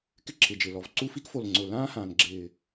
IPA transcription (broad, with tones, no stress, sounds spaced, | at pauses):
k ɪ˥ ǁʰ ɪ˨˩ d͡ʒ ɪ˨˩ l ɔ˨˩ v ǀ u˥˧ f i˥ k f o˨˩ l ŋ͡ǀ ʊː˨˩ l ãː˥ h ãː˨˩ n ɡ͡ǁ ɪː˨˩